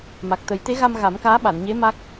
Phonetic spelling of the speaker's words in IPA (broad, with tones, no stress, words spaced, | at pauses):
ma˨˩k̚t̪ə˨˩˦jt̪e˧˥ɣa˧m ɣa˨˩˦mkaː˧˥ɓa˨˩˨nɲe˧˥ ma˦˥k̚